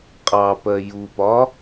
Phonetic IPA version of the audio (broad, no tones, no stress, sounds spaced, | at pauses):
qʼ ɑ p ɜ j u p ɒ